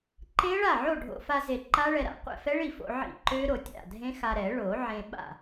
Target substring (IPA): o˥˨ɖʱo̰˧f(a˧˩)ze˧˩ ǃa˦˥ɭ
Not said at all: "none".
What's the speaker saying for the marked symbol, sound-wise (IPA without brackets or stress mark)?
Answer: a˧